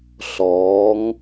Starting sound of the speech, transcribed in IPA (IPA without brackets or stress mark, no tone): ɬ